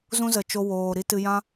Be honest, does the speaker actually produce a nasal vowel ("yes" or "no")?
yes